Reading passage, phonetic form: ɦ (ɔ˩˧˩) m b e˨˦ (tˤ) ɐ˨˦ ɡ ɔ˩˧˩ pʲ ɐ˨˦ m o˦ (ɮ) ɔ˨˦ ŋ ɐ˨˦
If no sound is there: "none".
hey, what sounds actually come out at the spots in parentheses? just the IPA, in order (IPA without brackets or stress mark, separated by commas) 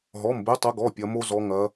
ɔ˩˧˩, tˤ, z